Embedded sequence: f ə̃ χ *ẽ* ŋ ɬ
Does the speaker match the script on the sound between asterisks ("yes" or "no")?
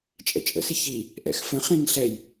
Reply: no